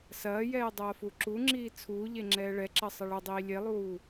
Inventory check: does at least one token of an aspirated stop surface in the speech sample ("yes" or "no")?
yes